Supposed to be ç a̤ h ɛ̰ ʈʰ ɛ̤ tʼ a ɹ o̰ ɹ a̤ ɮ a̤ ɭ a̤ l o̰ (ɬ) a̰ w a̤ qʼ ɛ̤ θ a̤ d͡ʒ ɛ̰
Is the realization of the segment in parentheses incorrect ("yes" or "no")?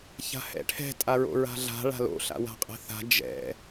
no